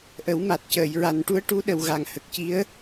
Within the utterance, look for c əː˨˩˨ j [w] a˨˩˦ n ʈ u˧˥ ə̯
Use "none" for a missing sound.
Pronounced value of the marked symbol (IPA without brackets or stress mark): ɹ